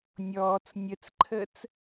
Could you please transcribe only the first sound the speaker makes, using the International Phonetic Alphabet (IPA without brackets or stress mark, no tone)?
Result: nʲ